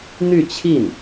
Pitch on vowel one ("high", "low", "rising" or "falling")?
falling